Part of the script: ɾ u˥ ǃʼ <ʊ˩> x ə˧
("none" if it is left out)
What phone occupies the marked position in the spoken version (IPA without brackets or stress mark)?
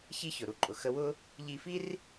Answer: ʊ˩